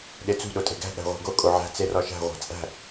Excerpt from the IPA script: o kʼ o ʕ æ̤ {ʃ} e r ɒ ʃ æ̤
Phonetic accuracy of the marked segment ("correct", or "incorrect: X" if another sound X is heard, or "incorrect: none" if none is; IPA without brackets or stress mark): incorrect: t͡s